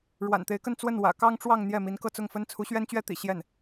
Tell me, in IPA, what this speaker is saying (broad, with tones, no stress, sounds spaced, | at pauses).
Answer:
ɻ w a̰˨˩ n t̪ e˧˥ ɪ̯ k ə˥˧ n t͡s w ə˥˩ n w ä̰˨˩ k ɑ˥ ŋ ʈ͡ʂ w ɑ˥˧ ŋ n̪ j ɛ˥˩ m i˧˥ n k ɤ˥˧ t͡s ʊ˥˩ ŋ f ə˥ n t͡sʰ u˧˥ ɕ ɥ ɛ˥ n t͡ɕ ɥ ɛ˥ t̪ ḭ˨˩ ɕ j ɛ˥˩ n